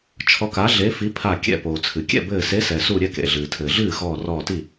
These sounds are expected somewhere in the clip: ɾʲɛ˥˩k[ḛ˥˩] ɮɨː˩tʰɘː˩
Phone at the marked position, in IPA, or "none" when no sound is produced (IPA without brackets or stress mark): ḛ˩